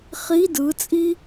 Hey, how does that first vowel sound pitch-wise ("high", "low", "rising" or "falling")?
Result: rising